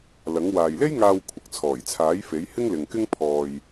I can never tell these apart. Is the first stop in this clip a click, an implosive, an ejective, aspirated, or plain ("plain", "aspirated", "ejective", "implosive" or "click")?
aspirated